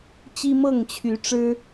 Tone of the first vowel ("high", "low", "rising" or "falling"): high